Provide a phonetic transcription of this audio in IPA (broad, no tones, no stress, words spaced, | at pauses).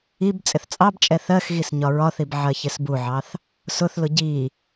ib t͡sʼɪθt͡sʼɑbt͡ʃʼɛ θɜxɣis ɲɒɹɒθib ʕɜçɪsbuʕɑθ | sʊθlʊ ɟi